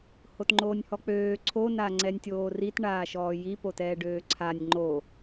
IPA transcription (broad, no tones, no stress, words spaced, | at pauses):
hotŋ͡ǃoːnʲhɔk͡pøː ǀʰo naŋ͡ǀɛnʲtʲoːrit ɳaːʃɔːji potɛːɖøːǀʰanʲ ŋ͡ǃo